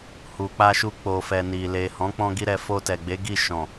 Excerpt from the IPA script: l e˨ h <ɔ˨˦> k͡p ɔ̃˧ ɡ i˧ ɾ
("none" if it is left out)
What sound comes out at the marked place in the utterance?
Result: ɔ̃˨˦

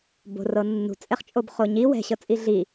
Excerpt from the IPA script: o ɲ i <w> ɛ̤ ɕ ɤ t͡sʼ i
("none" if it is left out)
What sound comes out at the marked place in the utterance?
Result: w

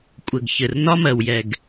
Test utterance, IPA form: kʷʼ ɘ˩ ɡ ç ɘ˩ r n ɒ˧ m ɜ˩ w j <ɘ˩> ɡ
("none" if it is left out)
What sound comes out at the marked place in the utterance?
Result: ɛ˩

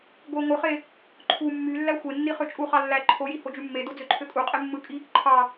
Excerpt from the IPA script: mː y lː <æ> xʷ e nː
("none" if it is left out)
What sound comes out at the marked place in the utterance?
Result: æ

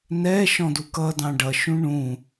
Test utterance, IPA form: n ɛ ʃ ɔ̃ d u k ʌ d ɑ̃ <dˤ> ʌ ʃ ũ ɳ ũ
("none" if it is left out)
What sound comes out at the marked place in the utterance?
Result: ɖ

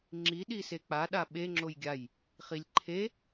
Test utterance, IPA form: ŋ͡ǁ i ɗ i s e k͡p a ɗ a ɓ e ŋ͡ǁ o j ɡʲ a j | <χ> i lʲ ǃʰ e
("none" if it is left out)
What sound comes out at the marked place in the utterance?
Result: χ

